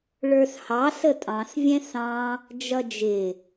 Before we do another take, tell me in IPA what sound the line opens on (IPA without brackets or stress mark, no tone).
ɭ